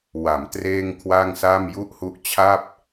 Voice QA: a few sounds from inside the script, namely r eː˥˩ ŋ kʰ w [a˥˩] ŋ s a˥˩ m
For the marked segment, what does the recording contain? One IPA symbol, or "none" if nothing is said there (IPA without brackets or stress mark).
a˥˩